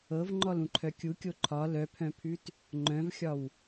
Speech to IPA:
ɤvŋ͡ǃɔlũǃʰœ kʲukʲo ǃʰɒ lœpʰœ̃pʰʉt | ŋ͡ǃœ̃vxʲɒw

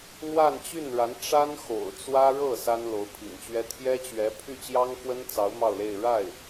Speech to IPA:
n̪wa˥˧nt͡ɕy˥˩nɻa˧˥n ʈ͡ʂa˥n xo̰˨˩ʊ̯t͡swä˥ ɻɤ˥˩ sa˥nlo˧˥ʊ̯pʰḭ˨˩ŋt͡ɕɥɛ˥ t̪ʰjɛ˥t͡ɕɥɛ˧˥ pʰy˥˩t͡ɕjɑ˥ŋxwə˥nt͡sɑ˧˥ʊ̯ mɑ˥˧ʊ̯le˥˧ɪ̯ ɻa˥˩ɪ̯

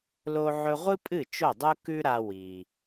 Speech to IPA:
lo˧ʕɵ˧ʁʷɨ˥pʼɨ˥˩ t͡ʃo˥˩dˤu˥kʉ˥ɾa˧ wi˩

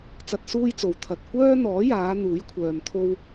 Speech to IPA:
t͡sɐ˧t̚suː˥jt͡so˨w t̪ʰɐ˨t̚ kʷœː˥ n̪ɔː˨˥jaː˨˧ n̪uː˨˥jkʷʰœː˨m t̪ʰo˥w

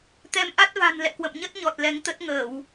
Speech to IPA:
t̪ɛ˨˦mʔa˦˥t̚va̤˨˩n lɛ̰˧˨kwə̰˧˨mɲə˦˥t̚ɲɔ˨˩t̚ lɛ˨˦ŋt̪ə˦˥t̚ ŋəː˧˩˨w

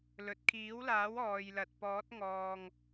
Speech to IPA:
lɵ˨t̚kʰiː˨˥wlaː˨˥w ɔː˨jlɐ˨t̚pɔː˨˥t̚ ŋɔː˨ŋ

